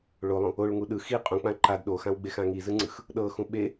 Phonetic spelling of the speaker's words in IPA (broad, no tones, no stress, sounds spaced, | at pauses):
ɭ o lˠ ũ | o ɭ ŋ u ɗ ɯ x i qʼ ũ k͡p ã ǃ a d ɗ o x ã w ɡ͡b e x ã ŋ i z ɯ ŋ͡ǀ ɯ x | ɗ ɤ x ũ ɓ e